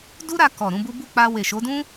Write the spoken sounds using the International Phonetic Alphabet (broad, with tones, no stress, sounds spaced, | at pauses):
d u˦ ɾ a˧ k ɔ˨ ɾ ũ˨˦ b u˦ b u˦˨ k͡p a˧ w e˨ ʃ o˨˦ d ũ˦